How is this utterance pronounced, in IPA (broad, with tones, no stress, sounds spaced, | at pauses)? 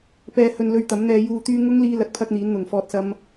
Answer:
p ɛː˨ h ɵ˨ n l ɵ˧ ɥ t̪ ɐ˨˥ m n̪ ɛː˧ j uː˨ t̪ yː˧ ŋ ʊ˥ ŋ l iː˧ l ɐ˨˥ t̚ pʰ ɐ˧ k̚ n̪ iː˨˥ n n̪ ʊ˨˩ ŋ f ɔː˧ t̚ s ɐ˥ m